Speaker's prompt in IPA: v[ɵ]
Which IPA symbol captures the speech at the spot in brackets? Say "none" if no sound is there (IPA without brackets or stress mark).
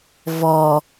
ɔ